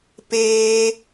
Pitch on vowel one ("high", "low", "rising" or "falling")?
high